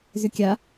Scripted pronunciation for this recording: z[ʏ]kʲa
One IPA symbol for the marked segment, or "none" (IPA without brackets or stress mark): ʏ